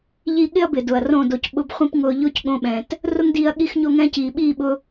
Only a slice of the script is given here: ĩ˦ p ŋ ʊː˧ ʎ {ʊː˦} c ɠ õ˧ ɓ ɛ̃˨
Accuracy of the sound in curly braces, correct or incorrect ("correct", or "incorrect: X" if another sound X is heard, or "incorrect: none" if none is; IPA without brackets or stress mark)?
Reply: correct